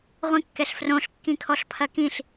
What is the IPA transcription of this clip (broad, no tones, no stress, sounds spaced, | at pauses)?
ʁʷ ĩ kː ɛ ɬ f r õ ɬ kː ĩ kʰ ɔ ɬ pʰ ɐ k ĩ ɬ